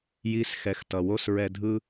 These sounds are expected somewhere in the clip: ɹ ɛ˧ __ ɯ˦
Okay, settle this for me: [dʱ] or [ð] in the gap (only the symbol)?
dʱ